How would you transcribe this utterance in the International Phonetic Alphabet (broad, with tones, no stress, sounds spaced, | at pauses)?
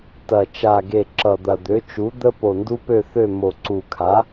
t ɐ˨˩ t͡ʃ a˨˩ ɡ e˨˩ ǁ ʌ˨˩ d̪ ɐ˨˩ d̪ ø˩˥ t͡ʃ u˩˥ d̪ ə˦ p o˨˩ n d u˦ p ø˦˨ θ ø˦˨ m o˨˩ ǀ u˨˩ kʰ a˩˥